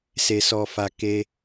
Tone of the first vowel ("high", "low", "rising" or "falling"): low